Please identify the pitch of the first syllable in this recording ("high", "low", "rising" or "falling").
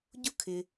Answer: high